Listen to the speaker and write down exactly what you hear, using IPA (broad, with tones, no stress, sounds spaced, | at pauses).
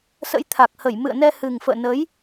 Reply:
s ə̰˧˥ j t̪ʰ a˨˩ k̚ h ə˧˩ j m ɨ̰˧˨ ə̯ n ɛ˧ h ɨ˨˩ ŋ f ə̰ː˧˨ n ə˨˦ j